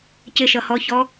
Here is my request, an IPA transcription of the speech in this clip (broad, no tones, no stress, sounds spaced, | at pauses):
c ɪ ʃ ʌ h ɔ ç ɔ